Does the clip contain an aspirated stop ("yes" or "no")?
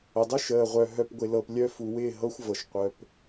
no